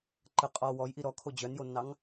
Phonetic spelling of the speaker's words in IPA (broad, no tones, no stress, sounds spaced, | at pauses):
ǃ ə qʼ ɔ w ɔ j ʔ i ɾ ɔ kʰ o d͡ʑ œ n j o nː ɑ ŋ